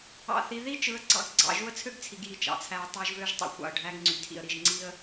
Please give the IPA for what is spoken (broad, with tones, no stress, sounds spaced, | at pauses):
ɑ̰˨ θ i˨ ð i˦ t͡ʃ ɯ˨˦ ə̯ ɡ͡ǀ ɑ̰˦˨ ɡ ɡ͡ǀ ɑ̰˨ ʒ u˦ ə̯ t͡sʰ ø˦ ɡ t͡sʰ i˨ ɡ j i˦˨ t͡ʃ ɑ̰˨ t͡sʰ æ˦ ə̯ tˤ ɑ˦ ʒ v ø˦ ʒ tˤ ḭ˨ xʷ ɑ̰˨ ə̯ ɖʱ æ˦ ɡ ŋ͡ǀ y˨ tʰ ḭ˨ ə̯ ɾ i˨ ʒ ŋ͡ǀ i˦ ə̯